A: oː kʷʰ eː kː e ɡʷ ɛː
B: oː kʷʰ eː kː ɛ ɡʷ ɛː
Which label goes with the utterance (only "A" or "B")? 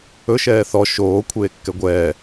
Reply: B